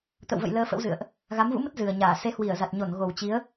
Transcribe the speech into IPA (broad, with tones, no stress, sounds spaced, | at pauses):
t̪ ə̰˧˨ w v ə̰˧˨ j l əː˧ f ə̰˧˥ w z ɨ̰˧˨ ə̯ ʔ | ɣ a˨˦ m v ṵ˧˥ m ə˦˥ t̚ z ɨ˨˩ ə̯ ɲ aː˧˩ s e˨˦ h w i˧˩ ə̯ z a˨˩ t̚ ɲ o˧˩ n ɣ o˨˩ w t͡ɕ i˨˦ ə̯